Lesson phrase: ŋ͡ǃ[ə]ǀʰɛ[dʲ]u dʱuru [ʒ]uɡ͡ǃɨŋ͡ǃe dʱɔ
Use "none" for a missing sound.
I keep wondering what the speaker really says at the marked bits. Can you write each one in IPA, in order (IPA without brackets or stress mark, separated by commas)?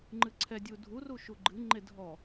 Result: ɨ, dʲ, ʃ